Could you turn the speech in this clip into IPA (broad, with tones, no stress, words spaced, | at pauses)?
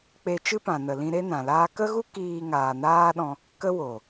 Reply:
k͡pe˧ t͡ʃɨ˦pã˨nə˨lĩ˧ ɾe˦nã˨laː˦ kə˦ɣu˦ kiː˧ŋaː˨naː˦ɗɔ̃˧ | kə˦wo˨